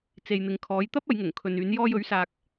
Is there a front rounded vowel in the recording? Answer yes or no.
yes